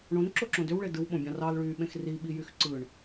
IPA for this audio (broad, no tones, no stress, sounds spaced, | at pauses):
ɳ õ n ǁ o ǁ õ d ø w ɭ e d ɯ w ɓ õ bʲ ɑ̃ r ɑ l ɭ yː ɓ ẽ x r i ɓ i j y x ǀ ɯ ɳ